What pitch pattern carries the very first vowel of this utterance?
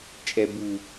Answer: low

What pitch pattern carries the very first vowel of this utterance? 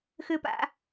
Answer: low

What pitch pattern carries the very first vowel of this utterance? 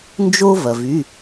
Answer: high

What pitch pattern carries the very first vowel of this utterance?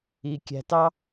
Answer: low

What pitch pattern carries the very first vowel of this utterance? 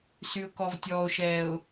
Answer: low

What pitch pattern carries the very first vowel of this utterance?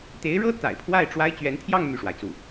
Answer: rising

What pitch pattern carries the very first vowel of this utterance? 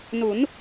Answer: rising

